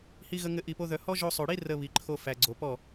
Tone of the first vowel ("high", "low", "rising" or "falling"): high